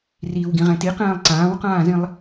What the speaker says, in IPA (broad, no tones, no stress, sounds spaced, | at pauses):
r iː w ɡ ĩ ʁ ɛ̃ t i q ɛ̃ː lˠ ǀ ãː w q ãː z ĩ lˠ